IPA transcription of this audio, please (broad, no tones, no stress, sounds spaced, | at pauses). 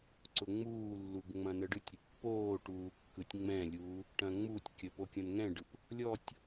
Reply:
ǀ ʊ ŋ͡m uː lː u ɡ ŋ͡m ɐ̃ n ə ɖ ɯ tʲ ɾʲ ə pː oː ʈ uː kː ɯ tʲ ŋ͡m ɛ̃ lʲ uː | ʈ ɐ̃ ŋ͡m u tʲ kʲ ə p o kʲ ɐ̃ n ŋ ɛ̃ ɖ ɯ p | lʲ ɔ tʲ